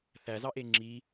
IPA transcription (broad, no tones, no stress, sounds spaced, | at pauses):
θ æ z ɑ ʔ e ŋ͡ǁ i